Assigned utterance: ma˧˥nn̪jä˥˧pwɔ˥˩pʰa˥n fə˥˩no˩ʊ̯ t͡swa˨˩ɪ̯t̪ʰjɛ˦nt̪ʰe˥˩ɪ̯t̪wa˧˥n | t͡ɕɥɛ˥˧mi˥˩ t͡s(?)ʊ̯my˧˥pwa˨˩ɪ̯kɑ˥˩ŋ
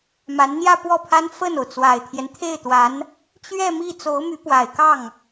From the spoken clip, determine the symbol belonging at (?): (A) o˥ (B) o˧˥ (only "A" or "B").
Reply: B